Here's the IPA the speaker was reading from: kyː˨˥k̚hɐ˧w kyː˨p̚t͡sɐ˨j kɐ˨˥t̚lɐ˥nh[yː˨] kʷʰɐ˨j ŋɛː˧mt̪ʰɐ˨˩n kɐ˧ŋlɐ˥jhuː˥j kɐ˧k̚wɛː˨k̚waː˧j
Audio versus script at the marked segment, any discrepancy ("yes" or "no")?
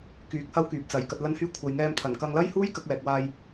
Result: yes